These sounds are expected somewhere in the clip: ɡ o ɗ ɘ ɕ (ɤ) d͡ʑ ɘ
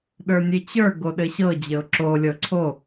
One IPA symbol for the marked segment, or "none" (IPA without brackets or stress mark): ɤ